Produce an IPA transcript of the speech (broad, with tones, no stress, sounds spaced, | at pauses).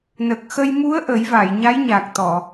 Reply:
n ə˨˩ k̚ x ə˧ j m u˧˥ ə̯ ʔ ə˨˩˦ j v a˨˩˨ j ɲ a˧˥ j ɲ a˨˩ k̚ t̪ ɔ˨˩˨